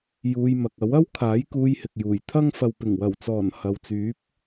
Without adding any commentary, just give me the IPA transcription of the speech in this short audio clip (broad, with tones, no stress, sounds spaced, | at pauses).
j uː˧ j m ɐ˨ k̚ ɐ˨˥ w ɐ˥ w kʰ aː˨˥ j k uː˧ j h ɪ˨ k̚ j uː˨˩ j t̪ʰ ɐ˥ ŋ f ɐ˨ w p ɪ˨˩ ŋ w ɐ˨˩ w t͡s ɔː˨˩ n h ɐ˨ w t͡s yː˨˥ p̚